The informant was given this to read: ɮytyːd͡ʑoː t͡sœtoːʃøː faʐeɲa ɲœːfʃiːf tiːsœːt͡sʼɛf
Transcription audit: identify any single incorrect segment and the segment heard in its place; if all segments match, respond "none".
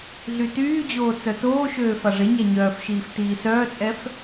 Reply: none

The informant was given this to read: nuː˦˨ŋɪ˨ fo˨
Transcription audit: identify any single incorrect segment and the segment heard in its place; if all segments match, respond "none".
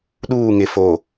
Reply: n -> ɗ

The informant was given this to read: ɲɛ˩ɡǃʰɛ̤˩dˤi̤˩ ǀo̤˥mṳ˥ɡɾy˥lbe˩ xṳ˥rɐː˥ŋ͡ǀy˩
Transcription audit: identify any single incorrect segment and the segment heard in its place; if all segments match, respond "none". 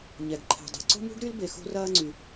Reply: none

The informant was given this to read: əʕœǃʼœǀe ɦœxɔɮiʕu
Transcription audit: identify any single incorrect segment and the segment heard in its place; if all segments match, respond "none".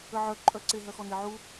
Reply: ɮ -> n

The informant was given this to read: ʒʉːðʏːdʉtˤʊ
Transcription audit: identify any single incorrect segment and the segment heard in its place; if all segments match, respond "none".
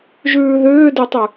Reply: ʊ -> ʉ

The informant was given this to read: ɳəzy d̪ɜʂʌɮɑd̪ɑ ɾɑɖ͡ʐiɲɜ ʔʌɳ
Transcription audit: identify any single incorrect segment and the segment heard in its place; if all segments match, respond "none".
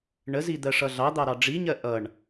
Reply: y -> i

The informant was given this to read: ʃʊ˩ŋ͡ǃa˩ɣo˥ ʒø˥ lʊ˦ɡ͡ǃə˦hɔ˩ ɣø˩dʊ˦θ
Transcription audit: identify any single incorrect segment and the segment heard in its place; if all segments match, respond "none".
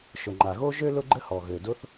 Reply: none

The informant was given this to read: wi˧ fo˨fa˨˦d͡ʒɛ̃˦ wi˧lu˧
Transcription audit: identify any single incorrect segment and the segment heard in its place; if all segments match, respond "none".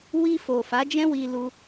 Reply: none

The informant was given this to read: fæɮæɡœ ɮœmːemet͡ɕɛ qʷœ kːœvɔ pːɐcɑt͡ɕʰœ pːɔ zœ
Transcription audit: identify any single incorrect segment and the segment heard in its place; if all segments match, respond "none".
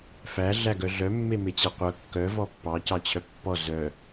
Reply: ɐ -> ɑ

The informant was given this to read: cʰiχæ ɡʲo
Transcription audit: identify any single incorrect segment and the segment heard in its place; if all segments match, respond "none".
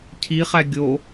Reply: none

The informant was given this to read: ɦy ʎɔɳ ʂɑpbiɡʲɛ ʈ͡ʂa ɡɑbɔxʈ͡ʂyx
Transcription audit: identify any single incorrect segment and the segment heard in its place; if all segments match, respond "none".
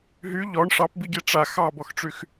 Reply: ɡ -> x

